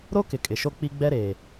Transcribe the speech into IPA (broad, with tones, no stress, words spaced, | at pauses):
ɾo˦kɪ˨ kʼɪ˨ʃo˦ k͡pi˦ɡ͡bɛ˦ ɾeː˨